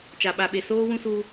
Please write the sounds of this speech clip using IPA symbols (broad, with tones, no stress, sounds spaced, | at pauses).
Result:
t͡ʃ a˨ ɓ a˨ ɓ e˨ s oː˦ w ũ˦ s u˦